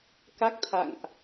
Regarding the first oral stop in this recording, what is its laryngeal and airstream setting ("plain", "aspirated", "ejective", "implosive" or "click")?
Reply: plain